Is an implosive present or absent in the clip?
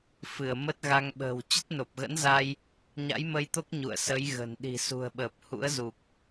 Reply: present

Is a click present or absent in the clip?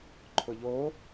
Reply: present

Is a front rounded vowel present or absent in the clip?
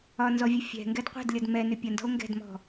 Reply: present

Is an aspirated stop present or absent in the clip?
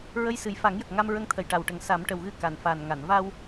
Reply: present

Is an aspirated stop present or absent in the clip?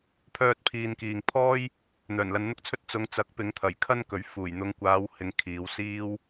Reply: present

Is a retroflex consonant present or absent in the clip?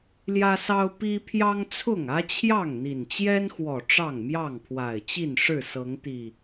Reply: present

